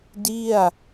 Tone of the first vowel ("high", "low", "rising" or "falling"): falling